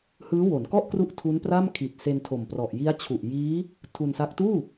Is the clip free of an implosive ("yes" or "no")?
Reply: yes